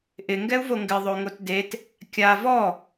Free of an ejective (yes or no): yes